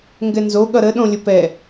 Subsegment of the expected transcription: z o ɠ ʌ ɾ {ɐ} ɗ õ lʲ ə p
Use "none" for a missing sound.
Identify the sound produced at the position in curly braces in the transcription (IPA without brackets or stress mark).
ə